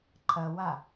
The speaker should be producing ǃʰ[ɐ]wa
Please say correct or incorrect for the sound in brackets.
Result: correct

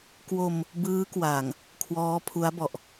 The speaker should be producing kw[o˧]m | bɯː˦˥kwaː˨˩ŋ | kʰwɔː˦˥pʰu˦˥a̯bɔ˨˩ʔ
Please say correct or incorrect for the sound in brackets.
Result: correct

